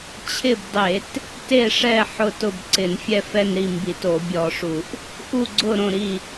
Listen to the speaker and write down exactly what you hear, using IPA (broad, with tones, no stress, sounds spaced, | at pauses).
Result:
t͡ɕʰ ɪ˥˨ b dˤ e˧˩˧ t | t e˥˨ ʂ ɛ˥˨ ħ ʊ˥˨ t ʊ˥˨ b ǀ ɪ˧˩˧ n fʲ ɛ˥˨ f ɛ˥˨ n ɾ i˥˨ m b i˧˩˧ t o˧˩˧ bʲ ɔ˧˩˧ ʂ u˧˩˧ ʔ | ʔ u˥˨ ɡ͡ǀ ʊ˥˨ ɾ õ˥˨ ɾ i˥˨